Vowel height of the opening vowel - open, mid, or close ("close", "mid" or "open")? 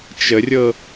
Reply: mid